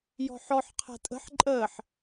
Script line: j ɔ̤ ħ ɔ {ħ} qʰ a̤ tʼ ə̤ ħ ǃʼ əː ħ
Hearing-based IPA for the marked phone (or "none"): ħ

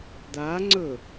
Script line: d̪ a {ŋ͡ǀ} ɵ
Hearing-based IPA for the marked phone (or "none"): ŋ͡ǀ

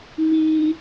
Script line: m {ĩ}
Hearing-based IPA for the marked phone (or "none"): i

